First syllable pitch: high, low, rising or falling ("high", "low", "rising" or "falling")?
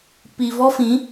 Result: low